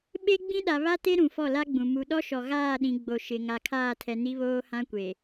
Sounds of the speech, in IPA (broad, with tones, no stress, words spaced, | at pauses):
ɓe˦ɡ͡bĩ˦ɗa˨ βa˦te˦ ɾũ˨fɔ˦˨la˦ɡ͡bũ˨ mu˨ɗɔ˦ʃɔ˨ ɣaː˦˨ɗĩ˨ ɡ͡bo˨ ʃɪ˨ŋa˨kʰaː˦˨tʰɛ˨ ni˦βoː˦hã˦kʷe˨